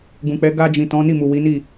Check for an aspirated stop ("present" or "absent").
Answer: absent